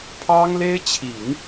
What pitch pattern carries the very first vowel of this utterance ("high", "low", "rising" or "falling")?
high